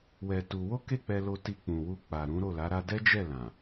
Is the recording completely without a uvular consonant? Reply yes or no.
yes